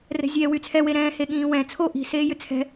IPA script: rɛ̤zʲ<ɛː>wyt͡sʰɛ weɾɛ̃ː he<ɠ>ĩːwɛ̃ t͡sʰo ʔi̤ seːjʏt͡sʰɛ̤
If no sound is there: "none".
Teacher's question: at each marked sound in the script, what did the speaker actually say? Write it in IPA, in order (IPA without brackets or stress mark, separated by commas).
ɛː, ɠ